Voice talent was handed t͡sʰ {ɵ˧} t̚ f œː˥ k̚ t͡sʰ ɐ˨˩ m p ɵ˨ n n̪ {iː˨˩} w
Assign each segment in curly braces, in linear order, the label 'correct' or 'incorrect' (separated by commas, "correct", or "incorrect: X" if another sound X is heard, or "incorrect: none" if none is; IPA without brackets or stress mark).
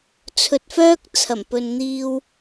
correct, incorrect: iː˧